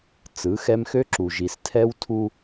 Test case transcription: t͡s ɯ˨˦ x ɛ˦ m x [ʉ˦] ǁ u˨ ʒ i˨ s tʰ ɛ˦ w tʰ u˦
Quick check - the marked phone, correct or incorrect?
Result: incorrect